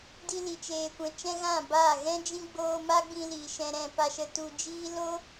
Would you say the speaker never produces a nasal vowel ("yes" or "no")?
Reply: no